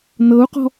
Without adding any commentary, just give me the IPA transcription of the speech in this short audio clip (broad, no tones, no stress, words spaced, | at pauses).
nɤu̯qɔ̤